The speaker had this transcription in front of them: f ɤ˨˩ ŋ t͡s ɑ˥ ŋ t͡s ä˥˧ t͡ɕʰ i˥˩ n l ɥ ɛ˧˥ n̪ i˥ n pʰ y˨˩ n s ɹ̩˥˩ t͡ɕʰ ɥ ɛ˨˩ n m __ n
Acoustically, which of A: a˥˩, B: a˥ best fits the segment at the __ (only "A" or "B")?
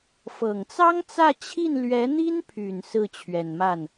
A